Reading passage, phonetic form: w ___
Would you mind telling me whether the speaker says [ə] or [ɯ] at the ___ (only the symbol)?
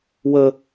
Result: ə